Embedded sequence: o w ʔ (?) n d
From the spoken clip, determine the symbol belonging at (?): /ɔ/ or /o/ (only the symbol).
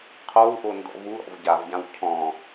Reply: o